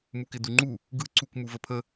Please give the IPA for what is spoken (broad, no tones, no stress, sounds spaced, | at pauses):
m u k ɪ d u ŋ͡ǃ u | ɡ ɯ ǀ u k m u v ə pʰ ə